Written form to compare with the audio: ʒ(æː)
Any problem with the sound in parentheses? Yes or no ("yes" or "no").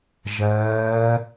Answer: yes